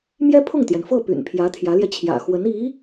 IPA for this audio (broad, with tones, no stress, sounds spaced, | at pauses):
m j ɛ˥ pʰ ʊ˥˩ ŋ t̪ j ɛ˩ n f ɤ˥˩ p y̰˨˩ n pʰ j ä˧˥ t̪ʰ j ä˧˥ l j ɛ˧ t͡ɕʰ j ä̰˨˩ x w ə˧˥ n i˧˥